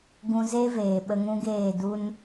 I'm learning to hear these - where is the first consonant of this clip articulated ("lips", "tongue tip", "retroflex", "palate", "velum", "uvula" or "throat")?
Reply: velum